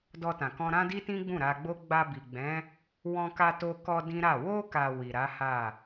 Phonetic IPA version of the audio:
d ɔ˧ t ã˨ k ɔ̃˧ ɾ ã˦ d i˦ t ĩ˦ ɡ͡b ũ˦˨ ɾ a˧ ɡ͡b o˦ ɡ͡b a˧ b i˨ ɡ͡b ɛ̃˨˦ | w ɔ̃˧ k a˧ t o˧ k ɔ˧ d ĩ˦ ɾ a˦˨ w o˧ k a˨ w i˨ ɾ a˨˦ h a˦˨

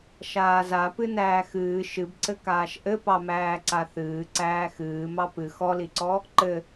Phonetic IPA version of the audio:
ʃ aː z a p ɨ n æː x ɨː ʃ ɨ b ǀ ɘ k aː ʃ ʔ ɘ p ɑ m æː ǀ a θ ɨː ǀ æː x ɨː m ɑ p ɨ x ɔ l i ǀ ɔ | ǃ ɘ

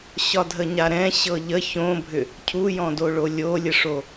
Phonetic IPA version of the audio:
ɕ ɒ dʱ ə ɲ a ɾ ɛ̃ ɕ ɤ ʎ ə ç õ bʱ ʏ | cʰ u j ɔ̃ d o ɭ o lʲ o lʲ ə ʂ o

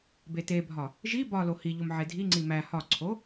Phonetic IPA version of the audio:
b e t e bʱ ɒ | ʒ i b ɒ l o h i ʎ o m ʕ e dʱ i ŋ͡ǀ i m æ h ɒ ǀʰ o

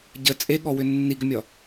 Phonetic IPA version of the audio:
ɟ ə t͡sʼ e ɠ ɔ w ʏ nː i ɡ ʏ mʲ ɒ

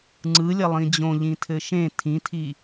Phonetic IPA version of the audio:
ŋ͡ǀ ɯ lʲ ɐ lˠ ĩ d͡ʑ õ ʎ ĩ tʰ ɘ ʃ ẽ tʰ ĩ tʰ i

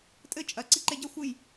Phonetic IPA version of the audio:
tʼ ɘ t͡ʃʼ ɐ ǀ i ǃ e ɟ ɐ xʷ ɨ j

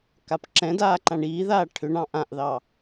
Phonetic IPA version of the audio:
k a p ǁ ɛ̃ d aː ǃ ã ɳ iː ð aː ʈʰ ʏ ɳ ɑ̃ ʔ ã ʔ ð ɑ

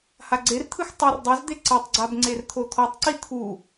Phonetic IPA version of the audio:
h a ɡ͡ǀ e r t̪ʰ ɯ x tˤ ɤ r dˤ u z d̪ e ǀ ɛ tˤ ɡ͡ǀ a b ŋ͡ǀ e r t̪ʰ o t̪ʰ ɔ tˤ ǀ i t̪ʰ u

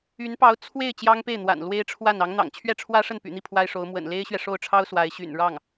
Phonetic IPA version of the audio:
y˧˥ n p ɑ˧˥ ʊ̯ t͡sʰ w e˥˩ ɪ̯ t͡ɕ j ɑ˥ ŋ p e˥˩ ɪ̯ n̪ w a̰˨˩ n l w e˥ ɪ̯ ʈ͡ʂʰ w a˥˩ n ɑ˧˥ ŋ n̪ ɑ̰˨˩ ŋ t͡ɕʰ ɥ ɛ˥˩ ʈ͡ʂʰ w ä˥ ʂ ə˥˩ n p y̰˨˩ n̪ i˥˩ pʰ w a˥ ɪ̯ ʂ o˧˥ ʊ̯ m w ə̰˨˩ n l e˥ ɪ̯ ɕ ɥ ɛ˨ ʂ o˥˩ ʊ̯ ʈ͡ʂʰ ɑ˥ ʊ̯ s w a˧˥ ɪ̯ ɕ y̰˨˩ n ɻ ɑ˥˩ ŋ

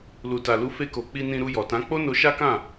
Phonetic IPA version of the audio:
l u˨ t a˨ l u˨˦ f e˧ k o˨ k͡p i˧ n ĩ˧ ɾ u˧ j ɔ˨ t ã˨˦ k͡p o˦ n o˧ ʃ a˦ k ã˦˨

